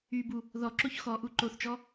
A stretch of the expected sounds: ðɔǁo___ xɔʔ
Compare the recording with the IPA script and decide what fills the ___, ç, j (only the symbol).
ç